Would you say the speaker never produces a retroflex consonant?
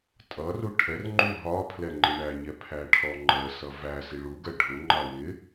no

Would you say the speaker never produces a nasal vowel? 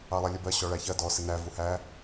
yes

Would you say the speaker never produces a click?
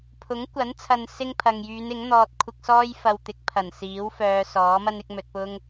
yes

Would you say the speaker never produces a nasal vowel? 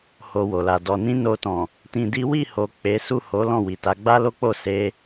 no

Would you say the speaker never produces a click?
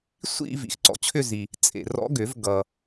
no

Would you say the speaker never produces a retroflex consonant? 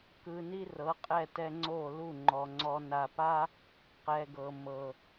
yes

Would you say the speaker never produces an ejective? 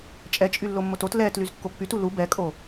no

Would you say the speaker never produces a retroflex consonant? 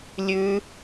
yes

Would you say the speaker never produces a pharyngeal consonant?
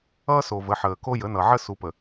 no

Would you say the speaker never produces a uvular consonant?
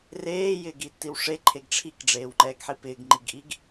yes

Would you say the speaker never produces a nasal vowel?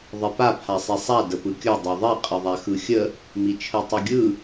yes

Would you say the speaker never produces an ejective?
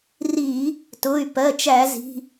yes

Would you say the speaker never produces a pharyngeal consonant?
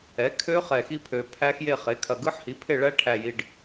no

